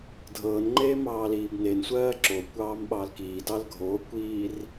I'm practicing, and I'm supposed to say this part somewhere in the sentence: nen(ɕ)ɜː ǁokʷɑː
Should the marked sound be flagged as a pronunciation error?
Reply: yes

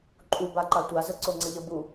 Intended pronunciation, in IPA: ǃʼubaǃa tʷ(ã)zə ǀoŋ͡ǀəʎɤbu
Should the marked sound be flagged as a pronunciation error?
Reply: yes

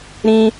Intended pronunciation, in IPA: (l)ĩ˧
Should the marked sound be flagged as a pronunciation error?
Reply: yes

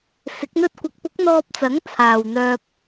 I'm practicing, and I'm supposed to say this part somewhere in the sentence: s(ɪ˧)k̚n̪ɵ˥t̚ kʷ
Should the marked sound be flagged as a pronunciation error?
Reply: yes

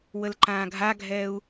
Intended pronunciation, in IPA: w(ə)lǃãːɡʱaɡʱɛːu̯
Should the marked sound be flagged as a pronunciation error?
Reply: no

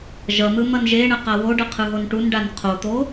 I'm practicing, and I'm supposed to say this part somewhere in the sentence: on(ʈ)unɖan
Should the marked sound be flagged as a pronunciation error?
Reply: no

